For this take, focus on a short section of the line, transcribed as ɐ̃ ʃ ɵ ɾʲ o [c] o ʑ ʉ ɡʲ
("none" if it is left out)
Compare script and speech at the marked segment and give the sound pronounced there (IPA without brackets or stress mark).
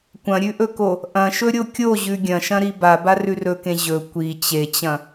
kʲ